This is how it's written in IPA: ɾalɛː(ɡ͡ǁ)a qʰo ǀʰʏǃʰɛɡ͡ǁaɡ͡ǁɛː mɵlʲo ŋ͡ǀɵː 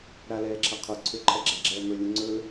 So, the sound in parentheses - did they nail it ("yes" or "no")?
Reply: no